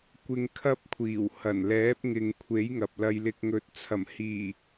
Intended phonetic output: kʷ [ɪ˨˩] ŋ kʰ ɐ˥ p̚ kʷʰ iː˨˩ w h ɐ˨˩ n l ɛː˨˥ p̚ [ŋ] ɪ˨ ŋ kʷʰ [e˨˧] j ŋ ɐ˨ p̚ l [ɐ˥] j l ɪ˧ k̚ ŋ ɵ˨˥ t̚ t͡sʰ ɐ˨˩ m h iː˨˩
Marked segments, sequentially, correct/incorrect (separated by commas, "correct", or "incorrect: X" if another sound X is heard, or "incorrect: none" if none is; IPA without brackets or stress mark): incorrect: ɪ˧, correct, incorrect: e˨˥, incorrect: ɐ˧